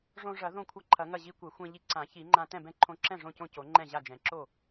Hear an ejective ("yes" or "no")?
no